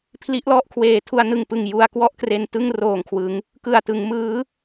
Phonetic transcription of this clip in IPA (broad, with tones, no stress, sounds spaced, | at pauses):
pʰ l i˦˥ ʔ l ɔ˥˩ ʔ kʰ w eː˨˩ tʰ u˧ a̯ n ɯ˨˩ ŋ p ɯ˨˩ ŋ j u˧ a̯ k w ɔ˥˩ ʔ k r e˧ n t ɯ˥˩ ŋ r oː˨˩ ŋ kʰ w ɯ˩˦ ŋ | k ɯ˨˩ a̯ t ɯ˩˦ ŋ m ɯː˦˥